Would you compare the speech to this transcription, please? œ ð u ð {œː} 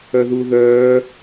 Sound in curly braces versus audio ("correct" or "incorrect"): correct